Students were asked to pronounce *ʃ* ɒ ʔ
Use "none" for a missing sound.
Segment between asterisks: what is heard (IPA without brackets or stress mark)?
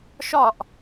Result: ʃ